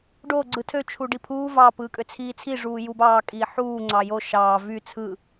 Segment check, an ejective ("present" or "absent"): present